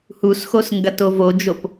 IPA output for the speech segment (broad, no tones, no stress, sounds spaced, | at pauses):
h u s x o s ŋ ɡ ɐ t o v o d͡ʒ o p